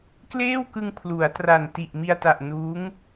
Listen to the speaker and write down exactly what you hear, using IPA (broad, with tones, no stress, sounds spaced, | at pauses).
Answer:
k l eː˥˩ w k ɯ˧ ŋ pʰ l u˩˦ a̯ t r a˨˩ n t i˨˩ ʔ m i˧ a̯ t a˨˩ ʔ n uː˦˥ ŋ